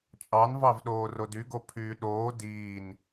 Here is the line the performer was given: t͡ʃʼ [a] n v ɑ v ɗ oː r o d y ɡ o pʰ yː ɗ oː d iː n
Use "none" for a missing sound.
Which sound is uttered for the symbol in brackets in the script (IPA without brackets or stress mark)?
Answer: ɑ